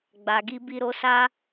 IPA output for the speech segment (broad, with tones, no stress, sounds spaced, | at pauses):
ɡ͡b a˨ ɡ i˧ b i˧ ɾ o˧ s a˦